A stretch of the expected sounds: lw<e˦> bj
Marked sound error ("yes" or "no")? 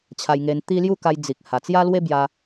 no